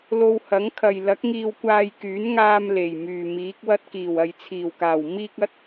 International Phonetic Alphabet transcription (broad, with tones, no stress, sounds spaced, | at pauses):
l o˧ w h ɐ˨˥ ŋ kʰ ɐ˨ j l ɐ˨˥ k̚ ŋ iː˧ w kʷ aː˧ j k yː˨˥ n ŋ aː˧ m l e˨˩ j m yː˨˩ m iː˨˥ k̚ w ɐ˧ t̚ k iː˨˩ w ɐ˨ j t͡sʰ iː˨˩ w k aː˨˩ w m iː˧ k̚ ɐ˨˥ t̚